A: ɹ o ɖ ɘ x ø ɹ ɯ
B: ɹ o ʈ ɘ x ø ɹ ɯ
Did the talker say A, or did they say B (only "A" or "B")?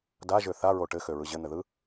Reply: B